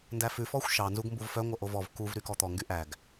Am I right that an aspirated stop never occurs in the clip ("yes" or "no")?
yes